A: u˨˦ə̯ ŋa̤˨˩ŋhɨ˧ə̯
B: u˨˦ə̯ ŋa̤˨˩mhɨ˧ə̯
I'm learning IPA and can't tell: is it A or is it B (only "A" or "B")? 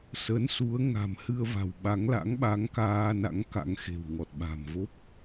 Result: B